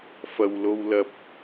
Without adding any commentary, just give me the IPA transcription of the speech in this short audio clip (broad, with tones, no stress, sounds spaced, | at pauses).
f ɐ˨ w l o˧ w l ɐ˧ p̚